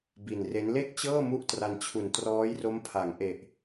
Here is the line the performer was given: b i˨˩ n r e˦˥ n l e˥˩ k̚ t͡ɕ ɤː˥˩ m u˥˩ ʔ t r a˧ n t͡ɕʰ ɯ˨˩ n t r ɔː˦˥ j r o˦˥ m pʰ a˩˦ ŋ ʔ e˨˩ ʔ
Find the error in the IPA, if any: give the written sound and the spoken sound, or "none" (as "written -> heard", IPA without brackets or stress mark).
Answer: ɯ˨˩ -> u˨˩